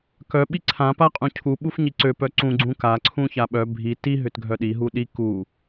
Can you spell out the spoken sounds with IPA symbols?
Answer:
k œ ɓ i ǀʰ ã p a qʼ ũ cʰ u ɓ u f ɲ i ǀ ø p œ ǀ ũ ɡ͡ǀ ũ k a ǀʰ ũ ç a ɓ œ bʱ i t i ɦ ʏ t ɡʱ œ ɗ i ɦ u ɗ i k u

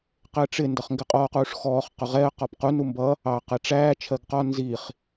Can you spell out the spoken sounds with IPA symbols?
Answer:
q ɪ ə̯ ʈ͡ʂ ɪ n d ʌ χ ŋ ɡ ɪ qʼ ɔː q uː ʂ x ɔː χ q ʊ ʁ ɛ ə̯ q ɔ p q u n u m b ʌ | ɑ q ɛ ʈ͡ʂ æː t͡ʃʰ ɜ ɡ q ɒ n z i χ

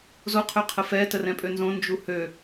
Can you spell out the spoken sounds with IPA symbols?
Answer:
z o qʰ ø qʰ ə f ɛ t ə r ɛ̃ pʼ ø n z õ n d͡ʒ u h ø

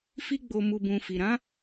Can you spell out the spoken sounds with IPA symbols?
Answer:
f i˦ ɡ͡b o˧ m u˨ b ũ˨ f i˨ ɾ ã˨˦

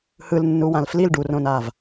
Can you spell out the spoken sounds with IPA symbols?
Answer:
h ɯ l nː u w ã l f l i l ɖ u r õ n a v

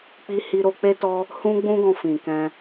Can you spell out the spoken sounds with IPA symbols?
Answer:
k͡p i˦ h i˦ ɾ o˦ k͡p e˦ t ɔ˦ | h ũ˦ ɡ͡b ũ˦ ɡ ɔ̃˧ f ĩ˨ k ɛ̃˧

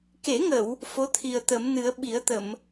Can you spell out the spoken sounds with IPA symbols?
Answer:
k e˨˩˦ ŋ ə˨˩˨ w | f o˧˥ t̪ʰ i˨˩ ə̯ t̪ ə˨˩˦ m n ɨ˨˩˦ ə̯ ɓ i˨˩˦ ə̯ t̪ ə˨˩˨ m

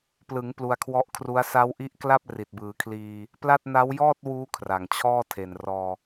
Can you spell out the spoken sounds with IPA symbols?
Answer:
p l ɯ˩˦ ŋ p l u˧ a̯ kʰ w ɔ˦˥ ʔ kʰ r u˦˥ a̯ s a˦˥ w ʔ i˦˥ ʔ k l a˥˩ p̚ r i˨˩ t̚ b ɯː˩˦ kʰ l iː˧ | p l a˥˩ t̚ n a˦˥ w j ɔː˥˩ t̚ w uː˦˥ kʰ r a˨˩ ŋ t͡ɕʰ ɔː˥˩ tʰ e˨˩ n r ɔː˧

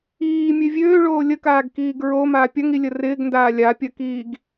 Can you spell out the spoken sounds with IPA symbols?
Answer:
iː mʲ ø vʲ øː ɭ oː lʲ ə k aː ɡ k iː ɡ ɹ o m a pʲ ɐ ŋ i lʲ ə r ɪː ɡ n d aː lʲ a pʲ ɐ k iː ɡ

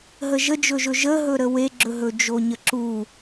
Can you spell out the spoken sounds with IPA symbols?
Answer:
ɦ ə ʒ ə d͡ʒ ɵ ʒ ɵ ʒ ə ɦ ɵ ɾ ə w e ɡ͡ǁ ɵ ɦ ɵ d͡ʒ o ɲ ə ǁ u

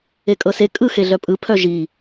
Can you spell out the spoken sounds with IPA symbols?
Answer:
e kʼ ɤ s e kʼ ɯ x e ɮ œ pʼ ɯ pʰ œ ʒ i

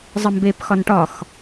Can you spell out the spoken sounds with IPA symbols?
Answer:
zˤ ə m b e p x ɒ n ʈ ɒ x

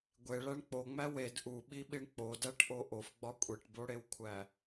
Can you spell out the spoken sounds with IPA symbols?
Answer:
ɡʷ e ɭ æ ɳ k͡p o ŋ͡m æ w e d ʔ u ɓ i ɓ i ɳ k͡p o d æ ʈ ʔ o ʔ o f ɡ͡b ɒ kʷʼ e ʈ b o ɽ e w kʷʰ æ

